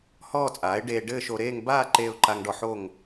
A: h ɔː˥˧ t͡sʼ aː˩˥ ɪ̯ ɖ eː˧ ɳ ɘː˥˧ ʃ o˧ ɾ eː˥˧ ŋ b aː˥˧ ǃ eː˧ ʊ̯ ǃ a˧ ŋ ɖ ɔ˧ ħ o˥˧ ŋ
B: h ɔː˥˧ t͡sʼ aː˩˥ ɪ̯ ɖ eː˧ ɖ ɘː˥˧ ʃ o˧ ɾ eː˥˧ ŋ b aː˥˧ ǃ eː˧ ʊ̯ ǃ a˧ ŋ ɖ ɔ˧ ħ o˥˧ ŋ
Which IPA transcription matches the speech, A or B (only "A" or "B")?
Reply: B